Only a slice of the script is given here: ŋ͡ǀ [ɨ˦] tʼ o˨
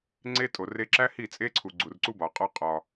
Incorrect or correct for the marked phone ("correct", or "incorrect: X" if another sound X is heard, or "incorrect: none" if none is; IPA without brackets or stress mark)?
incorrect: e˦